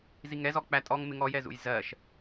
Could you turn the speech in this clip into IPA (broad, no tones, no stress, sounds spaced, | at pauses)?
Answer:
z i ŋ ɛ z ɔ k͡p æ tʼ ɔ ŋ m ɪ ŋ ɔ j ɛ z ṵ j z ɜ ʃ